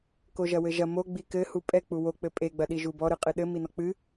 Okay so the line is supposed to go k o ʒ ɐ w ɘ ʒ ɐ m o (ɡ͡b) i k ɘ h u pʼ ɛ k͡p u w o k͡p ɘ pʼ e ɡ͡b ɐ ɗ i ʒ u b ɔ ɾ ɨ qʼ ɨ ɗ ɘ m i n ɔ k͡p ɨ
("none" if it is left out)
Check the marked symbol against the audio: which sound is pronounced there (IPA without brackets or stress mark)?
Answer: ɡ͡b